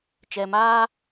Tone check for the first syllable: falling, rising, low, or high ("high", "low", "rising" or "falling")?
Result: low